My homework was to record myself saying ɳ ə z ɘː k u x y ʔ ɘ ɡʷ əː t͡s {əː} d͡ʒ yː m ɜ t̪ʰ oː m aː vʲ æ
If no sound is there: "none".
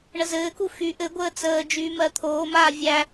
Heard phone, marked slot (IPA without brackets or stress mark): əː